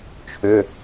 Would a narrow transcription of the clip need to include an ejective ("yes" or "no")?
no